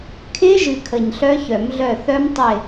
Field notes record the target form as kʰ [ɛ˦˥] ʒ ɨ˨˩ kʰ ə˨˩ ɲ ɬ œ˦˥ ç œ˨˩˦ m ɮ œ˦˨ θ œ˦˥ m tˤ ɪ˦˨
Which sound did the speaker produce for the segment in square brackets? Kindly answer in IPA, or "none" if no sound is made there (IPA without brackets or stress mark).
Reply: ɪ˦˥